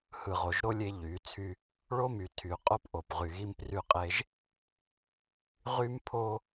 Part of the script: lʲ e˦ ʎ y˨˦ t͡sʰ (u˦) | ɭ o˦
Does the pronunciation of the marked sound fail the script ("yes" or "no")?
yes